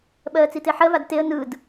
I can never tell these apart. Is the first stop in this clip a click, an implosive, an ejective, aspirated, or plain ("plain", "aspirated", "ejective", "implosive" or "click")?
implosive